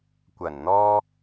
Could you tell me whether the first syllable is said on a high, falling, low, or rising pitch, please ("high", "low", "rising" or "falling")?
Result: low